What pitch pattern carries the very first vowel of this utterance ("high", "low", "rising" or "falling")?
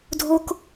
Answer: high